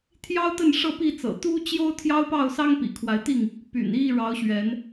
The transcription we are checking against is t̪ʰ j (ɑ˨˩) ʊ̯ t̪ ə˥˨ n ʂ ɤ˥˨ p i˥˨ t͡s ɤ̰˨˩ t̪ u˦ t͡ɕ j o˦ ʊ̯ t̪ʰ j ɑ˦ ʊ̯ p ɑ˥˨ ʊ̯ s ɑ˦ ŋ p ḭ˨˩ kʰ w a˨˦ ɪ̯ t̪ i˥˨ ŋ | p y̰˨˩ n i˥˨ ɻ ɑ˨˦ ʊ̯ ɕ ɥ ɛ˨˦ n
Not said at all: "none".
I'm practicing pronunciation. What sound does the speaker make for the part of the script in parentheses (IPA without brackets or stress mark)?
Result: ɑ˦